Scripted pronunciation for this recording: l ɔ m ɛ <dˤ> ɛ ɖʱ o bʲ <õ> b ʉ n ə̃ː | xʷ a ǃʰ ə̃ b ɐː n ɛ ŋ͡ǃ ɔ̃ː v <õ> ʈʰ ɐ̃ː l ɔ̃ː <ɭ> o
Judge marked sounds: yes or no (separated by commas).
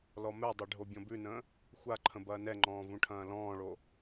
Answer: yes, no, no, yes